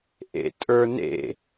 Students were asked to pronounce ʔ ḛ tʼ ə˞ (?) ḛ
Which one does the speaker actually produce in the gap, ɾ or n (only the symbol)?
n